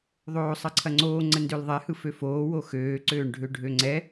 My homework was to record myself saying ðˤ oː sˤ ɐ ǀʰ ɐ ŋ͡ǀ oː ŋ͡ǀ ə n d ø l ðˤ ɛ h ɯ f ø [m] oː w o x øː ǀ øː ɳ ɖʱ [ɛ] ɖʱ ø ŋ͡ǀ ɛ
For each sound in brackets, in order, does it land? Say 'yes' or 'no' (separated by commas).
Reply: no, no